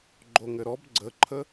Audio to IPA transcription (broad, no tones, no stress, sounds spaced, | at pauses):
ɡ͡ǃ o ŋ ɘ ɾ ɔ b ɡ͡ǀ ə ǃʰ ə